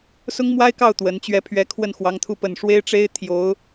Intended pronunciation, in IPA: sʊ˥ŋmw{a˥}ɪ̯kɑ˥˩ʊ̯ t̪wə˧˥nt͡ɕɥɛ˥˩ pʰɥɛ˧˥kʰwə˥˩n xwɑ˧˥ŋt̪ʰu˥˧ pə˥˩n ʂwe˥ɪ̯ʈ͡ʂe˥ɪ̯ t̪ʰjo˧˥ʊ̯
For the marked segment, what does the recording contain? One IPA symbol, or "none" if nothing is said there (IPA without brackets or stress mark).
a˥